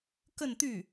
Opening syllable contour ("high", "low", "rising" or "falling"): falling